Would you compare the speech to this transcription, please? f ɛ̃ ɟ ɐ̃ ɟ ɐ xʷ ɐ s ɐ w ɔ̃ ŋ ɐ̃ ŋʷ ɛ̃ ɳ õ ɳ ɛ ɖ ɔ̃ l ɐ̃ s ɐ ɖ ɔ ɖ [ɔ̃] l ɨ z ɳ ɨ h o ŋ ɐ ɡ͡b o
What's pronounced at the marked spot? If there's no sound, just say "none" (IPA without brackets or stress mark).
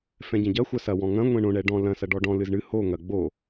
ɔ̃